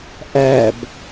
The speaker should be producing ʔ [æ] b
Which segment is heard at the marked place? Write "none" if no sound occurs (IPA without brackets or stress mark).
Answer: æ